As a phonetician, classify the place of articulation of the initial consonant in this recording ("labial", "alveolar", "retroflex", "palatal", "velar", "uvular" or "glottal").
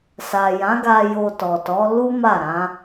alveolar